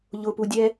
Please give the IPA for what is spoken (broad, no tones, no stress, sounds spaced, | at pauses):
ʎ ʊ p u dʲ ɛ